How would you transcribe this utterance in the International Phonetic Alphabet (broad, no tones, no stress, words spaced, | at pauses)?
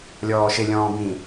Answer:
lʲɔːʃɪlʲɔ̃ː bĩ